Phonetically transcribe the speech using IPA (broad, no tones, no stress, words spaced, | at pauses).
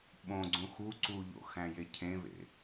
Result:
ɓõ ɡ͡ǀũxu ǀuʎo̰ xæ̃jecʰẽβḛ